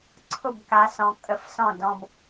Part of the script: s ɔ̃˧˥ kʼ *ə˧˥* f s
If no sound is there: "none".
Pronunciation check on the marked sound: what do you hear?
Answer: ə˧˥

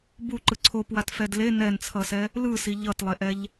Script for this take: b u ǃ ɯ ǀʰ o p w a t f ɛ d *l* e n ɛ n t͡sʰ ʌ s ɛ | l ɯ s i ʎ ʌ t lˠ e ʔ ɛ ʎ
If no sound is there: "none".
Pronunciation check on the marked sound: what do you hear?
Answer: l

